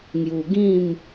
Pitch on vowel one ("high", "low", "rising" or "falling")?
low